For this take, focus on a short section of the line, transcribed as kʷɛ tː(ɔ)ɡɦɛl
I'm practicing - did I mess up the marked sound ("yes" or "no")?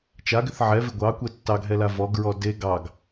yes